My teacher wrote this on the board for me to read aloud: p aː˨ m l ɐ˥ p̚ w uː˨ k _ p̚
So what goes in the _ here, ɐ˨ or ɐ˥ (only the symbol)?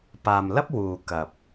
ɐ˨